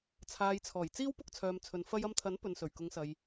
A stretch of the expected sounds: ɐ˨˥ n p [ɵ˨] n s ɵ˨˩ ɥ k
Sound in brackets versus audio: correct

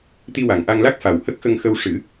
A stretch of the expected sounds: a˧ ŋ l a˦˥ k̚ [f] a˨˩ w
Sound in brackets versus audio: correct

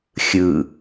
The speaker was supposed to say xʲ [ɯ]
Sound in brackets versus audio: correct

